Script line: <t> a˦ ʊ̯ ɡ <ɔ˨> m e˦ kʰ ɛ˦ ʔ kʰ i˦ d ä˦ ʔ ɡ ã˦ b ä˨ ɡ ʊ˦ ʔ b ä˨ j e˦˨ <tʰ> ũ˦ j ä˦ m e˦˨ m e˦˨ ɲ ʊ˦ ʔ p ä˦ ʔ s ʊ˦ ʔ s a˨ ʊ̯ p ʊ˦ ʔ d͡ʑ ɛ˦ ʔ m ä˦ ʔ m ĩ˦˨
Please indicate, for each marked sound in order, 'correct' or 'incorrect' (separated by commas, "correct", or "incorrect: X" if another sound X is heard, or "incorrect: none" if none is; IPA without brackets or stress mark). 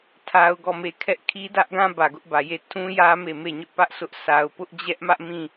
incorrect: tʰ, incorrect: ɔ˦˨, correct